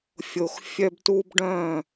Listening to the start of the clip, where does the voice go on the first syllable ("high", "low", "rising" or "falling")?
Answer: low